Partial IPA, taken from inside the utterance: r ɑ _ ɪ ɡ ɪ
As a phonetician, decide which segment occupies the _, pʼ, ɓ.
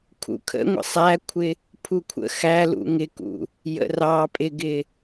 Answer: pʼ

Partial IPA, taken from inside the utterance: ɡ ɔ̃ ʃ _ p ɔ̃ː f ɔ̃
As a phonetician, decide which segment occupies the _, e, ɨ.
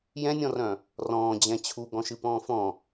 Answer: ɨ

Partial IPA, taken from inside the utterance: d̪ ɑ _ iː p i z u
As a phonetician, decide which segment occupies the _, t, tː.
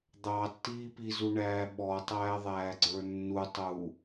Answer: tː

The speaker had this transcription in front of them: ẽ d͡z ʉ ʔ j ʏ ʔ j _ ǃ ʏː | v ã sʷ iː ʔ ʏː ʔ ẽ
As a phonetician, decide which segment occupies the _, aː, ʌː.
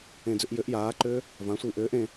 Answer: aː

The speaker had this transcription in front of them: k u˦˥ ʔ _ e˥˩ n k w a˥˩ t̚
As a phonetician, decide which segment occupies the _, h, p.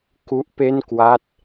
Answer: p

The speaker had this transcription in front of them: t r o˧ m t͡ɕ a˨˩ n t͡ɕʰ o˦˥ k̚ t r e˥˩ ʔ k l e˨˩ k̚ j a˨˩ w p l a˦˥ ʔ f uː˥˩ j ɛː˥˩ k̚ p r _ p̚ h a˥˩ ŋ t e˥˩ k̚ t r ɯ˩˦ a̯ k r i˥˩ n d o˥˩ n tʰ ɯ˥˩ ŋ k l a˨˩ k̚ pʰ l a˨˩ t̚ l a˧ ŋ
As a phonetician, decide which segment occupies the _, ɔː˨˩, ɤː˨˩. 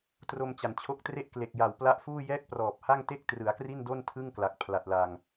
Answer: ɔː˨˩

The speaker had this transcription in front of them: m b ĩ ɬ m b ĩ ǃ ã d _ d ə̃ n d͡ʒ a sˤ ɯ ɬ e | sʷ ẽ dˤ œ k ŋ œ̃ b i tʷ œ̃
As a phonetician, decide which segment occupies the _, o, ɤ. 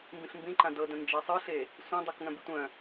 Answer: ɤ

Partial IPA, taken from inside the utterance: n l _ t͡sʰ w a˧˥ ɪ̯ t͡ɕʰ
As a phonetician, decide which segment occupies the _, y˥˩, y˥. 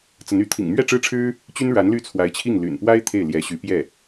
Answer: y˥˩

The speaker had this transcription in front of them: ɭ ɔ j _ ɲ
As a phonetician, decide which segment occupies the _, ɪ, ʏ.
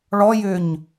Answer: ʏ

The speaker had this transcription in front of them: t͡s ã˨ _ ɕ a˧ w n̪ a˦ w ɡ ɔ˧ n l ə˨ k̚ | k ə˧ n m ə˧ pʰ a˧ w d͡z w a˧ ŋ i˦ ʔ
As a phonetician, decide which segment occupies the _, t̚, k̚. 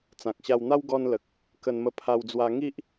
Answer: k̚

